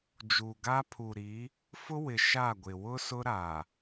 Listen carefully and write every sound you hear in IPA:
d͡ʒuː˨ɡa˦pʰu˨ɾi˨˦ | fʊ˦wɪ˨ ʃa˦˨ɡʷɪ˨ wʊ˦ sʊ˦ɾa˨

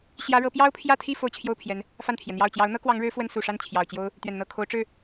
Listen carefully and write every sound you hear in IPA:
ɕjä˥ɻɤ˥ pjɑ˥ʊ̯pʰjä˥˧t̪ʰi˥˧ fo˥˧ʊ̯t͡ɕʰjo˥˩ʊ̯pʰjɛ˧˥n | fa˥˩nt̪ʰjɛ˩n̪jɑ˥˩ʊ̯ t͡ɕjɑ˧˥ʊ̯n̪ɤ˥kwɑ˧˥ŋɻɻ̩˧˥ fwə˥n su˨˩ʂa˥˩n t͡ɕʰjɑ˨˩ʊ̯t͡ɕjo˥ʊ̯ | t̪ɥɛ˨˩nn̪ɤ˥˩kʰo˧˥ʊ̯ ʈ͡ʂɻ̩˥˩

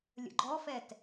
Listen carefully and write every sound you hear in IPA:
lʲə̰ɡ͡ǃɔfɛt

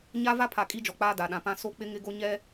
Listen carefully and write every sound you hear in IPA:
ɲa˦ va˦pʰa˨ kʼi˦d͡ʒɔ˨ k͡paː˦da˨ɗã˨pã˦ so˦k͡pɪ˦ŋɪ˦ɡo˦ ɲɛ˦

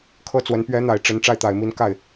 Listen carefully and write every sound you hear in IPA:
kʰɤ˥t͡swə˧˥n pɥɛ˧˥n̪a˨˩ɪ̯ ʈ͡ʂə˧˥n ʈ͡ʂa˥˩ɪ̯t̪a˨˩ɪ̯mi˧˥n ka˥˩ɪ̯

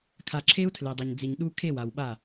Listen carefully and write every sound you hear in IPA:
kʰa˨ǁʰe˦u̯ tʰle˨dˤʌ˨ɲd͡zi˨ɲ ɗu˦ kʰe˦˨wa˨wɓa˦˨

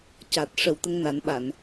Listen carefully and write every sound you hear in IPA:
caː˨˩t̚ʂə˨˩wt̪ə˧ŋ na˨˩˦nɓa˨˩˨n

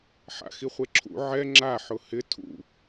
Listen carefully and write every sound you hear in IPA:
ħa̰xiχʷeǁʰṵ ʕɛ ŋ͡ǁa ħʊhɪ tʰṵ

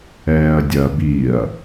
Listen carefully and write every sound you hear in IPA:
ɛːɐ̯dʲɐ biɐ̯

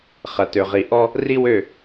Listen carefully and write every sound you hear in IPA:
χɐ˨tø˨ʁi˨ ʔɔ˦ | ri˦wø˦˨

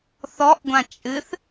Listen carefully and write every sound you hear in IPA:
θɔʔɡʷã t͡ʃʼɨθ

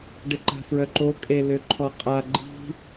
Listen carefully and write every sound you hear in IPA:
ɖɪǃa̤fɹœǃo kʼeløǃʰɔqʼa ɡ͡ǃi̤

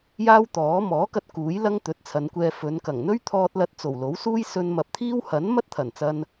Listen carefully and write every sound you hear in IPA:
jaː˥wt̪ɔː˨˥ mɔː˨˥kɐ˧t̚ kuː˨˥j lɐ˥ŋt̪ɵ˨˥t̚t͡sʰɐ˨˧nkʷɛː˧ fɵ˨˧nkɐ˨˩ŋ n̪ɵ˥ɥt̪ʰɔː˧t̚lɐ˧t̚ t͡so˨˩wlo˨˥wsuː˥j sɵ˧nmɐ˨p̚t̪ʰiː˥w hɐ˨˥nmɐ˥t̚ t̪ʰɐ˨˩nt͡sɐ˧n

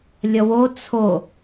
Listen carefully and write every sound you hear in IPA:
lʲʌwo t͡sʰo

